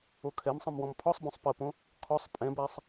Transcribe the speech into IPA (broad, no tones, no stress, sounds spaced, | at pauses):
o kʰ ɛ m sˤ ə̃ m w ɔ̃ m pʰ ɔ sˤ b õ sˤ p ə p õ | kʰ ɔ sˤ pʼ ɛ̃ b æ sˤ